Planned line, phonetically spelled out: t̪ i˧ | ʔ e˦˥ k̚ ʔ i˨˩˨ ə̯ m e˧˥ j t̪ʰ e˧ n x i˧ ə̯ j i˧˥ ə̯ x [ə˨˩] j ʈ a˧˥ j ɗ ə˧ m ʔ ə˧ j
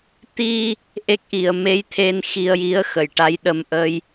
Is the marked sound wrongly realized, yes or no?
yes